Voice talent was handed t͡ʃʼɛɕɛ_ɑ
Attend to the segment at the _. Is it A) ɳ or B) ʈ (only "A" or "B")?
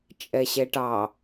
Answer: B